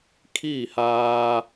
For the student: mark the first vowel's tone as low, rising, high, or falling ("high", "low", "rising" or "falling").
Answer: falling